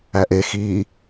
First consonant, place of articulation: glottal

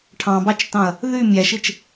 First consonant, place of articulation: retroflex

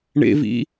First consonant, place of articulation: retroflex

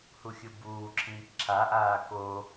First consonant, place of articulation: glottal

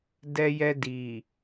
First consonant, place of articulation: alveolar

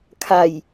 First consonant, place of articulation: velar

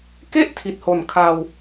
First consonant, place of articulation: velar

